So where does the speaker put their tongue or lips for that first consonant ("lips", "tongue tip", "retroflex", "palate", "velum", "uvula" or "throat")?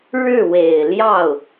retroflex